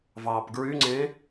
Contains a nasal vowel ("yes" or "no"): yes